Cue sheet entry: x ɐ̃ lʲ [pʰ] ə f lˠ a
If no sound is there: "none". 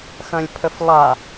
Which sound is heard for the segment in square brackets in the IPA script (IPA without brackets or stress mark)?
pʰ